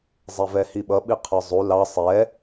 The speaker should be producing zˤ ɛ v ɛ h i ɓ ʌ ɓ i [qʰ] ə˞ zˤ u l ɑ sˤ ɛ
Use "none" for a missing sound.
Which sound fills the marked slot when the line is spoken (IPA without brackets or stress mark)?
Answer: qʰ